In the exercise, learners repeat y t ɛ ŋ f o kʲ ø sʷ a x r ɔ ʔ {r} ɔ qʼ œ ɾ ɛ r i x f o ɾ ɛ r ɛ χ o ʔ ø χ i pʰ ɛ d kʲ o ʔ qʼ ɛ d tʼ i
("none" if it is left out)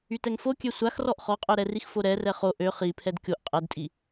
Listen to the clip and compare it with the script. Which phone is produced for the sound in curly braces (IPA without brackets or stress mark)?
χ